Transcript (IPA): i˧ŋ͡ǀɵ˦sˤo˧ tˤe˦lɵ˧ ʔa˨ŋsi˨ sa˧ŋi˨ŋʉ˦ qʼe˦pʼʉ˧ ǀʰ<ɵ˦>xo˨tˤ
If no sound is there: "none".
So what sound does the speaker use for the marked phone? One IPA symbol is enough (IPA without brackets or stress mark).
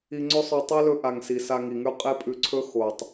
ɵ˦